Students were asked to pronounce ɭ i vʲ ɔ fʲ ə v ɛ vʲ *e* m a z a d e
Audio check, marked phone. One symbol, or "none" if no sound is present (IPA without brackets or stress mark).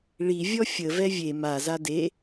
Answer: e